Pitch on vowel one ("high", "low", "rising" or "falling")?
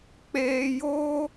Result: low